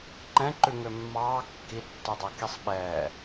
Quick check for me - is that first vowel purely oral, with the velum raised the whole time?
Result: no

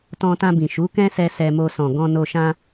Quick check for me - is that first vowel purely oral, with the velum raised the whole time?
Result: no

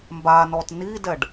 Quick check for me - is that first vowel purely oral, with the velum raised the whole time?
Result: yes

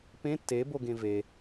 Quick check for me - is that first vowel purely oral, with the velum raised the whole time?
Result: no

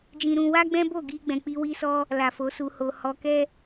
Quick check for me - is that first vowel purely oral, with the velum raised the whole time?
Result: no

